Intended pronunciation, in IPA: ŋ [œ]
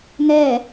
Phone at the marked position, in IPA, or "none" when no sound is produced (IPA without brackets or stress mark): ɛ